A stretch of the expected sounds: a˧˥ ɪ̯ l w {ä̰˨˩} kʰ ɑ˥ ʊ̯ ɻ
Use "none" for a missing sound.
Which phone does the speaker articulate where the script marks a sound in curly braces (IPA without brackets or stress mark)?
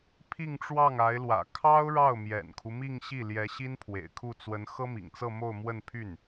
ä̰˨˩